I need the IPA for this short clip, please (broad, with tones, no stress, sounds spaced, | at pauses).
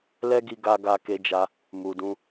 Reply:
l ɛ˦ ɡ i˧ ɡ a˧ ɡ a˧ k e˧ d͡ʒ a˧ | m u˨ d ũ˧